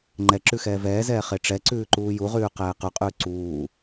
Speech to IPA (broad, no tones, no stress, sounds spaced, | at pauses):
ŋ͡ǃ ɛ ǁ ʉ x ɛː v ɛː z ɛː χ e ʈ͡ʂ ɛ ǀ ʉː ǃ uː j u ʁ ʉː q ɛː q ʉ qʼ ʉː ǀ uː